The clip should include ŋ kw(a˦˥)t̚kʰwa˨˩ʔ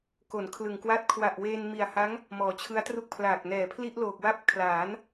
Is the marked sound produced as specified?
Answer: yes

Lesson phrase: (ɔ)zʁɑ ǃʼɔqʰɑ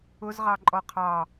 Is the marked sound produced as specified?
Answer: no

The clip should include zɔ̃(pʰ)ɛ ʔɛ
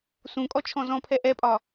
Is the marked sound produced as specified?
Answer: yes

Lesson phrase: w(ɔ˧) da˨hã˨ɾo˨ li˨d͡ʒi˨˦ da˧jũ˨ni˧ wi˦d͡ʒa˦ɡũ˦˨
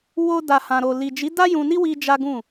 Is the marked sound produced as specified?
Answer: no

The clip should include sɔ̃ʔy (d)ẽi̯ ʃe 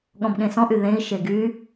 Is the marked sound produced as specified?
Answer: no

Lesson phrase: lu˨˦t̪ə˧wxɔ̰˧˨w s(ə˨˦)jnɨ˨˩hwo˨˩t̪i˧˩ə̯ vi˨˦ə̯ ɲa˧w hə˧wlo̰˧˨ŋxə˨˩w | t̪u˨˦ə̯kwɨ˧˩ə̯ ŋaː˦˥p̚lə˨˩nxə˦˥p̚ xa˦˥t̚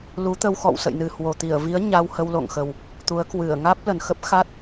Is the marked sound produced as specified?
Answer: no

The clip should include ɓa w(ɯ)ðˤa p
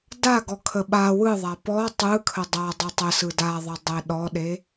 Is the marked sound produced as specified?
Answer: yes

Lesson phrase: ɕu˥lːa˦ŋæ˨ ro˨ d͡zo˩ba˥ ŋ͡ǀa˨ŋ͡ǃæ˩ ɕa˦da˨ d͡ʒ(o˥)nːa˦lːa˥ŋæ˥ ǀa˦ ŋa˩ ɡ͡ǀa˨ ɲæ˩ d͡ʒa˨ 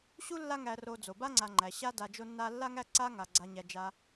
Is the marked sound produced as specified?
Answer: no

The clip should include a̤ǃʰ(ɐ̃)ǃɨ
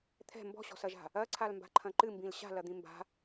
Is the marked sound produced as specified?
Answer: yes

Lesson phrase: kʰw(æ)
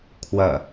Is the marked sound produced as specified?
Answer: no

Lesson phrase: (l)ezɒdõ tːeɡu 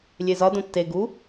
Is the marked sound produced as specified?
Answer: no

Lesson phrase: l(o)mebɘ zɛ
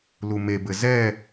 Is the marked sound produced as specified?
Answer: no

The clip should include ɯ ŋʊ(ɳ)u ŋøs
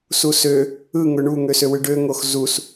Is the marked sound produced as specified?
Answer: yes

